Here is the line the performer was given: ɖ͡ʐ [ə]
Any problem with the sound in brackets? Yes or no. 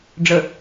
no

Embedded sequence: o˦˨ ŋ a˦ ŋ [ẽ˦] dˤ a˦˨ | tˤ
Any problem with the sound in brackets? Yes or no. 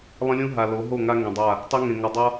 yes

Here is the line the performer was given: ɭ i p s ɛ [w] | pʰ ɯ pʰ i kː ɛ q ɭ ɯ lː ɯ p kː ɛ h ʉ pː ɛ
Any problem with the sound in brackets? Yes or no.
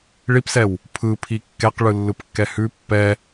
no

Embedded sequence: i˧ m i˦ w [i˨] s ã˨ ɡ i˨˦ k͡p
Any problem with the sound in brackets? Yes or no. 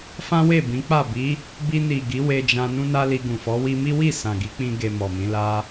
yes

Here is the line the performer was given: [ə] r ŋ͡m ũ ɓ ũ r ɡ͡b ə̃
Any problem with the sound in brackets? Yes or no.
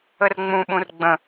no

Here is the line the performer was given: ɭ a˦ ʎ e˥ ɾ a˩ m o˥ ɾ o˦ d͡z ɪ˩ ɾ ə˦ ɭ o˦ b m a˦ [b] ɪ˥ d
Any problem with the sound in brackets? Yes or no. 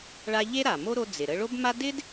yes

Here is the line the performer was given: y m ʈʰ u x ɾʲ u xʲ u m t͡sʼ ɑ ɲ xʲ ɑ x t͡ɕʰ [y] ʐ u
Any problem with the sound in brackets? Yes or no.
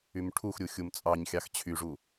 no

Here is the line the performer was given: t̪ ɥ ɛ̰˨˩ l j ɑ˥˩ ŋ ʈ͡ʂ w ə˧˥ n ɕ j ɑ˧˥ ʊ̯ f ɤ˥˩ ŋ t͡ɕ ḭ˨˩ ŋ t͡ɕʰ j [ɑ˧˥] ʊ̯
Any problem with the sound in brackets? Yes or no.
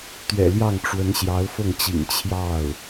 yes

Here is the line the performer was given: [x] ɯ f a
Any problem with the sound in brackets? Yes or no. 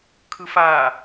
yes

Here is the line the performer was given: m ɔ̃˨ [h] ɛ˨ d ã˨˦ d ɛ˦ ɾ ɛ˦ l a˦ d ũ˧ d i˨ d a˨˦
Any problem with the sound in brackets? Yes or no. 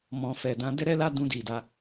yes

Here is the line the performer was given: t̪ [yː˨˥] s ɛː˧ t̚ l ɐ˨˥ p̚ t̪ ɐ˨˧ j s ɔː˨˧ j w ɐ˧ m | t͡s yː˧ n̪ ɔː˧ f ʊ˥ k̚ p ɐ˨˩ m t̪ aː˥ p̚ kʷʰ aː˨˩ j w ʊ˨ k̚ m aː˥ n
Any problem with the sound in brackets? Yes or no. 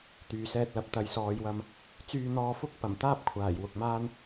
yes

